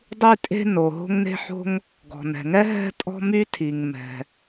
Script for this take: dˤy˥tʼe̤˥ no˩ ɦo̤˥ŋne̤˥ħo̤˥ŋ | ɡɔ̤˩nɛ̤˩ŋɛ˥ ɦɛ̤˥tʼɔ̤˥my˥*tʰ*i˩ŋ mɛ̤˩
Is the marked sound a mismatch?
no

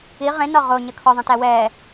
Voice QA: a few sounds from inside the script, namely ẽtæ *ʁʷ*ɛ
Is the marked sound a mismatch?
yes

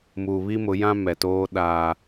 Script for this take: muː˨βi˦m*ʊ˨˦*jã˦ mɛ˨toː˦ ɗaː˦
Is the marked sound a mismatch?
no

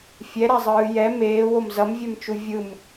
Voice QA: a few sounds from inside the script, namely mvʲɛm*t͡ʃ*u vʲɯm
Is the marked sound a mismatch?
no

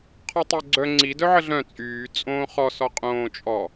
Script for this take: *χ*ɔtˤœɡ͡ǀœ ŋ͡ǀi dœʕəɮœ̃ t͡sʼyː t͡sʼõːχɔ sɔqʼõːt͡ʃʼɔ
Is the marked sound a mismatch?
yes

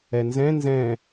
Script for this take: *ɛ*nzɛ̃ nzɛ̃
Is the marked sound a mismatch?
no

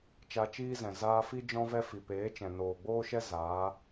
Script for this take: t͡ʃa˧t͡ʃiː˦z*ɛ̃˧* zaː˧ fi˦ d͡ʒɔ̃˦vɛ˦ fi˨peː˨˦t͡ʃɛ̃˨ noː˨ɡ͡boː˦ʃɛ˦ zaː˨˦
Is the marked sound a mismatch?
yes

